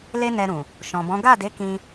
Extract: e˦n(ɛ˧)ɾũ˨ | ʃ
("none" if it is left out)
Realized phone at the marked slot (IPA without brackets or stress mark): ɛ˧